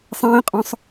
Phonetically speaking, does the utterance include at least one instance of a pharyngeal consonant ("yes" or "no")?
no